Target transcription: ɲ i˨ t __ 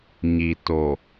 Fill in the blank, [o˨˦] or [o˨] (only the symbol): o˨